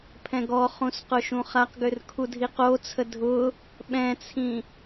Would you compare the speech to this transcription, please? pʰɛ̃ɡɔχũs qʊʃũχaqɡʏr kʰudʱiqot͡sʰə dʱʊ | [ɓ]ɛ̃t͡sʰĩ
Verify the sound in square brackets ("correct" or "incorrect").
correct